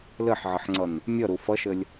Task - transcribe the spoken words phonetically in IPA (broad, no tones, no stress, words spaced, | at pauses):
lɘħʕəħŋ͡ǀʌn | mʲʌɾu fʌʃɘlʲ